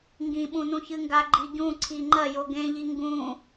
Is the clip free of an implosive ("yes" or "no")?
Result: no